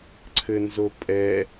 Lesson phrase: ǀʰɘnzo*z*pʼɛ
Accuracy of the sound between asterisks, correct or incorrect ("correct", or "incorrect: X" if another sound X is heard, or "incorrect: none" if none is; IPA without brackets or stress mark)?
incorrect: none